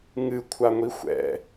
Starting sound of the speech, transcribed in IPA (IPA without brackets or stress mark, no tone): ŋ